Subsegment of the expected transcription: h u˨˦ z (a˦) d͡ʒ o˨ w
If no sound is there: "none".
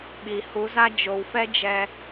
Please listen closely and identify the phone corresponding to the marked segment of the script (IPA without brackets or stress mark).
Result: a˦